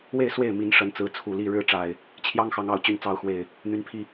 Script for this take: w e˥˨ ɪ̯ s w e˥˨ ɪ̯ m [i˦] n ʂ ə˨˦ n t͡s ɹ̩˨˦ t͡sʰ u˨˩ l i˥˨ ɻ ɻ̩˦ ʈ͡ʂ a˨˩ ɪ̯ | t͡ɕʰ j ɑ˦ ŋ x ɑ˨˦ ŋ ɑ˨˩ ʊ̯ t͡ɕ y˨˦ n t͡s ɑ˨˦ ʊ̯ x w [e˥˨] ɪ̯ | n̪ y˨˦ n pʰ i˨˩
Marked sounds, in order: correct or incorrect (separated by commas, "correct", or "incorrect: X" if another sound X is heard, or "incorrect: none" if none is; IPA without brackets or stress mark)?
incorrect: i˨˦, incorrect: e˨˩